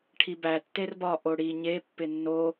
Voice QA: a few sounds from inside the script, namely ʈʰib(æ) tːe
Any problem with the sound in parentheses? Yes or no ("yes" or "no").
no